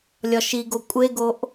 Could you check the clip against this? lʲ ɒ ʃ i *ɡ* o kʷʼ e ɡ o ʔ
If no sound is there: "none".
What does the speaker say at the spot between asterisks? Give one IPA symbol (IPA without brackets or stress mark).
ɡ